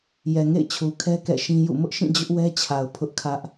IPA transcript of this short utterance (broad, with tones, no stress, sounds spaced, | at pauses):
j ɛ˨ ŋ ḛ˦˨ ɪ̯ t͡ɕʰ u˨ kʰ ɛ˦ k ɛ̰˦˨ ʃ ĩ˦ j ṵ˦˨ m ʊ˦ ʔ ʃ ĩ˦˨ d͡ʑ ʊ˦ ʔ w ɛ˦ t͡ɕʰ a˨ ʊ̯ pʰ ʊ˦ ʔ kʰ ä˦ ʔ